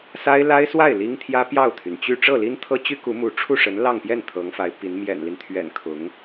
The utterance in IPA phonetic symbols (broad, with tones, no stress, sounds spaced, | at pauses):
s a˥ ɪ̯ l a˥ ɪ̯ s w a˥˩ ɪ̯ l i˥ ŋ t̪ʰ j ä˥ p j ɑ˥˩ ʊ̯ t̪ʰ y˩ n t͡ɕ y˥˧ ʈ͡ʂ ɤ˥˩ l i˥ n t̪ʰ ɤ˥ t͡ɕ y˥ k u˧˥ m u˧˥ ʈ͡ʂʰ u˥˩ ʂ ə˧˥ n l ɑ˥˧ ŋ p j ɛ˥˩ n t̪ʰ ɤ˧˥ ŋ f a˧˥ ɪ̯ p i˧˥ n m j ɛ̰˨˩ n l i˦ n t̪ʰ ɥ ɛ̰˨˩ n kʰ ʊ˧˥ ŋ